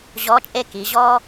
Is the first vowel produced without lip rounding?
no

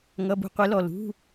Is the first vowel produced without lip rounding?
yes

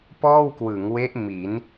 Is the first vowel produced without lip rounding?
no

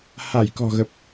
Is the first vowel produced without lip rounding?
yes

